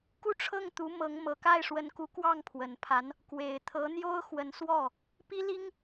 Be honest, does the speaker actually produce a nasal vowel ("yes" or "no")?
no